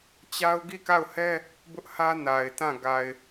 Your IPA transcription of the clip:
t͡ɕ a˦ ʊ̯ ɡ i˦˨ k a˦˨ ʊ̯ h ɛ˦ | b ʊ˦ ʔ h ä˦ n a˨ ɪ̯ t ã˦˨ ɡ a˨ ɪ̯

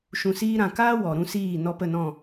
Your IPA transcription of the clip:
ʃ ũ˨ s iː˧ ɾ ã˨ k aː˦ w ɔ˨ ɾ ũ˦ s iː˦˨ n ɔ˧ p ə˦˨ n ɔ̃˦˨

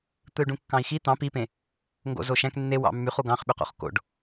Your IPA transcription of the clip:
t̪ ɯ y̯ ɖ ũ kː ɑ̃ i̯ x i t̪ ɑ̃ p i p ẽ | ŋ ɡ o̰ z o ʃ æ̃ k nː e w ɑ̰ mː y χ u ɡ ɑ̃ χ ɓ y q o̰ χ k o̰ ɖ

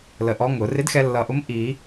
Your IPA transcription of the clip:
l ə˨˩ ʔ ɔ˧˥ ŋ ʊ˨˩˦ r ɪ˧˥ d x ɛ˧ lː ʌ˨˩ ʔ ʊ˧˥ m ʔ i˨˩˦

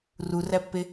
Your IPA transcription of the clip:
r u r æ pː e

